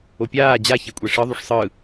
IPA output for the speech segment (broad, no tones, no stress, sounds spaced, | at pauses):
o pʲ aː d͡ʑ a ç ɛ kʷʼ ɛ ʂ ɯ ðˤ u ʂ sˤ ɯ